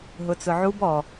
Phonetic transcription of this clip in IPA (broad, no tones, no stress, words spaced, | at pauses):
ɦʊt͡sʊʕub ɔ